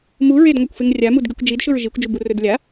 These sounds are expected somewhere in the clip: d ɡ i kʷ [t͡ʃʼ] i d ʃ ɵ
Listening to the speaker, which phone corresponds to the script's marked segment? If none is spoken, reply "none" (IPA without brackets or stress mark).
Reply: d͡ʒ